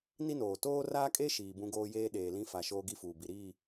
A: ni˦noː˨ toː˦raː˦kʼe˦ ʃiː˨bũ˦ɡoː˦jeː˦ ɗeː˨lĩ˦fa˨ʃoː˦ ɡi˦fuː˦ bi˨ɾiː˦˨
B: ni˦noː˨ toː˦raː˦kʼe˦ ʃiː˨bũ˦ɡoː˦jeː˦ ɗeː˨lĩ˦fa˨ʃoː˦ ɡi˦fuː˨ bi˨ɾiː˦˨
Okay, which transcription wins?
B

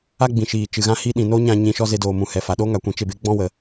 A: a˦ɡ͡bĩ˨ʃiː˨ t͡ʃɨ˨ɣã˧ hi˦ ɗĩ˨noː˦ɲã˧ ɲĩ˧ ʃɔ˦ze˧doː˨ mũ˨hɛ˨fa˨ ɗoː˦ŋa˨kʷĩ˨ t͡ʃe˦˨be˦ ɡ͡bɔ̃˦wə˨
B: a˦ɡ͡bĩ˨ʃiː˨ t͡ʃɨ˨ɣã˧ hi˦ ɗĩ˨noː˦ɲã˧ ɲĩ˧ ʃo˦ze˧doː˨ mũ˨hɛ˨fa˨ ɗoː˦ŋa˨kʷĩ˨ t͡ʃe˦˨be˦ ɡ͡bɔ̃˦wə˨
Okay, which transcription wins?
A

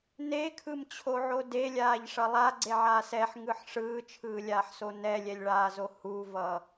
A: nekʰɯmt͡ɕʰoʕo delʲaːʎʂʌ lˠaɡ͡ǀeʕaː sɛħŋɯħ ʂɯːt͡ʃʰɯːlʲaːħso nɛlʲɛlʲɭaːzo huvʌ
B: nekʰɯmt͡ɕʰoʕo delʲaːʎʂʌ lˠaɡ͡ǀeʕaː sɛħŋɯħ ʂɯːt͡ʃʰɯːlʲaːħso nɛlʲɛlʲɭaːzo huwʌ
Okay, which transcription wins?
A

